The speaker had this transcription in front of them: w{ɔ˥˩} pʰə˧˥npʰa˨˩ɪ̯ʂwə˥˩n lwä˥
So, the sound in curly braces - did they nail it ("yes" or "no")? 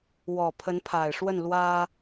no